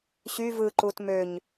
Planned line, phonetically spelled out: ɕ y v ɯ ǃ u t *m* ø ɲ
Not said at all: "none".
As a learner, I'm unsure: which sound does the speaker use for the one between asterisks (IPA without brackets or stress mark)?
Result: m